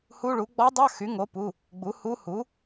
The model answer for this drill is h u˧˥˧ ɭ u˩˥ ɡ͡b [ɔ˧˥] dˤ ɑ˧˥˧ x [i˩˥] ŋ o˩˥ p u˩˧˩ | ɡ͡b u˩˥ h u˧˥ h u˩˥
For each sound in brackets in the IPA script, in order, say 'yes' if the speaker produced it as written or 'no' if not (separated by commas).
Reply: yes, no